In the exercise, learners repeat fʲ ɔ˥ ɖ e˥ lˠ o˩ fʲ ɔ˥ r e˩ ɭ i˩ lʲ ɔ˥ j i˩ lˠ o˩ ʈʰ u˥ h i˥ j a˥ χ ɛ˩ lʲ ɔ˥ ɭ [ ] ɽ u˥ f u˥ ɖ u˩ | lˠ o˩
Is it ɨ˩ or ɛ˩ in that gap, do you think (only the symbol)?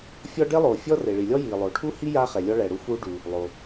ɛ˩